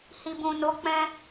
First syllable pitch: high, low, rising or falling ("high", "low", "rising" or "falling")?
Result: low